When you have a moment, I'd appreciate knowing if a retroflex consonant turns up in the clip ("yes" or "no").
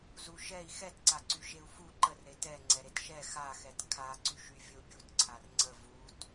no